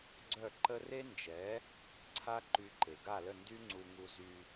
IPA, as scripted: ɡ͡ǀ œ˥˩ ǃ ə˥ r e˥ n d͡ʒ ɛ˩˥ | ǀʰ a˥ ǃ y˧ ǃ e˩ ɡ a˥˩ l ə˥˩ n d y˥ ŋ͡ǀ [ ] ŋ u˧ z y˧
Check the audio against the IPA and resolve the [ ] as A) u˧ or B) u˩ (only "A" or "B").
A